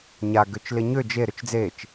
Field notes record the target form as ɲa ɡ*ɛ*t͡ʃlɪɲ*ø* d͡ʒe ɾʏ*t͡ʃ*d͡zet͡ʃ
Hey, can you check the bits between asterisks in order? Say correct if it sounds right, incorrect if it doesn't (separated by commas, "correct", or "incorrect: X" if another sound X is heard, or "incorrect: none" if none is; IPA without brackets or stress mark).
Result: incorrect: ø, correct, correct